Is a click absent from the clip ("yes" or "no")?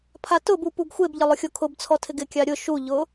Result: yes